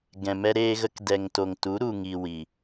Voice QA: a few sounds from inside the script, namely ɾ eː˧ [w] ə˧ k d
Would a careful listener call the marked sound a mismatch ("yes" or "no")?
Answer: yes